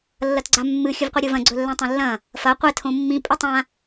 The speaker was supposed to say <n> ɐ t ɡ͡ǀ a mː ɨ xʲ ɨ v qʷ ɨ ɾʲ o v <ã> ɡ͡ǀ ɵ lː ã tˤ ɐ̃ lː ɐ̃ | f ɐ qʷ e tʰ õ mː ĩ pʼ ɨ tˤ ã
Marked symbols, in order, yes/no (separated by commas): no, no